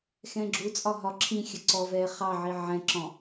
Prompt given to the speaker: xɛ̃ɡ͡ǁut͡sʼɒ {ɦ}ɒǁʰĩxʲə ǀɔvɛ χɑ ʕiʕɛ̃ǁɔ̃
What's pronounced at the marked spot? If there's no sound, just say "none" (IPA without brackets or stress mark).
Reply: ɦ